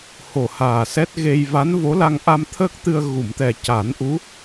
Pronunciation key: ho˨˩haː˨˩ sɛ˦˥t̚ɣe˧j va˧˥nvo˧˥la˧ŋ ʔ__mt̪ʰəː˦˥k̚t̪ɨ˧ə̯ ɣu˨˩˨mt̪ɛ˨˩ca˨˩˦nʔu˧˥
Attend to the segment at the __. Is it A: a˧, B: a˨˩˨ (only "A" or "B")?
A